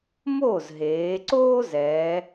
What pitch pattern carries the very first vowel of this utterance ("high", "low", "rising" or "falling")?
falling